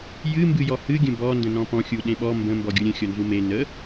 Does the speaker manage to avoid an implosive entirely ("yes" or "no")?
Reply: no